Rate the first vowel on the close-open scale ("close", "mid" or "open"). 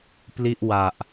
close